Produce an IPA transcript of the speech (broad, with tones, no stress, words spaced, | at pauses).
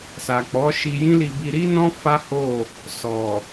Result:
sa˨k͡pɔ˨˦ ʃi˧jĩ˦li˧bi˧ ɾi˦nɔ̃˦ fa˦ho˦˨ | sɔ˨